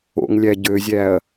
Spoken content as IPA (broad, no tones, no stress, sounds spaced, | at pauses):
o̰ ŋ lʲ æ ɟ ø zʲ æ ɐ̯